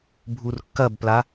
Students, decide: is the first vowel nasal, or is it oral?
oral